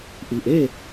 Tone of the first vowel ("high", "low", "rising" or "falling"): low